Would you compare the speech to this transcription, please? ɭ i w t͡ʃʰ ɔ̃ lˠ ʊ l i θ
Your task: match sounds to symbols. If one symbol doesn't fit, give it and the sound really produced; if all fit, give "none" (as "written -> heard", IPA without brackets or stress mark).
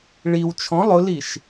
θ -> ʃ